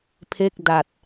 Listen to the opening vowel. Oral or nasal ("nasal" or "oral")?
oral